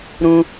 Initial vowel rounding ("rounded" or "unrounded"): rounded